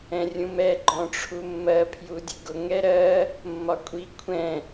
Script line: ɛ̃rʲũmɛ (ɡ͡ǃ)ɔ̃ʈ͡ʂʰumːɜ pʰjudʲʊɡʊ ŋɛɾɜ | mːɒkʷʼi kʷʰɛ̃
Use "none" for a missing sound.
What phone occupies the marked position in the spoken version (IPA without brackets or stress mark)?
ɡ͡ǃ